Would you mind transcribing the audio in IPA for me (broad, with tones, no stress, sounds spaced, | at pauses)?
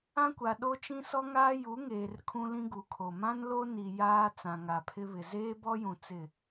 ã˦ kʷ a˨ ɗ o˦ t͡ʃ ĩ˦ s ɔ˦ ŋ aː˦ j u˨˦ ŋ eː˨ r kʰ ũ˦ l ĩ˦ ɡ u˨˦ kʰ o˨ m ã˦ n l o˦ n i˨ j aː˦ t͡s ã˨ ŋ a˨ pʰ ɪ˦ β ɪ˨ z eː˦ b ɔ˦ j ũ˨ t͡s ɪ˦˨